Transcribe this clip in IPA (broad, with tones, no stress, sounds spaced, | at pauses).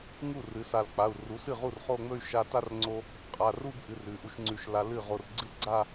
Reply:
ŋ u˥˩ r ɨ˩˥ s a˧˩ l k͡p a˩˧˩ u̯ r u˩˥ s ɨ˥˩ ʁ u˥˩ r χ o˥˧ ŋ͡m ɵ˥˧ y̯ ʃ a˧ t a˥˧ r ŋ͡ǀ o˧ | qʼ a˩˧˩ r u˥˧ b ʔ ɨ˩˧˩ r ʉ˩˥ ʔ u˧ ʃ ŋ͡ǀ ʉ˧˩ ʃ l a˧ l ɨ˥˩ ʁ o˧˩ r ɡ͡ǀ ɨ˥˩ ɡ͡ǀ a˥˧